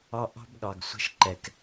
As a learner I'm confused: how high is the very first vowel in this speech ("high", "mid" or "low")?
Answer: low